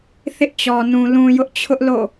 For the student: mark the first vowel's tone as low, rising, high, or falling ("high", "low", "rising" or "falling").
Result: high